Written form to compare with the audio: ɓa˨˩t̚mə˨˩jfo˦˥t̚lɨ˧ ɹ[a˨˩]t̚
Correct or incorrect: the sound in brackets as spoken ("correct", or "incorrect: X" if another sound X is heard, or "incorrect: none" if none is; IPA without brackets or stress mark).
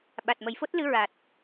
correct